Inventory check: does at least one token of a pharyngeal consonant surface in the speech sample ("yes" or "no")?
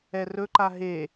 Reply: no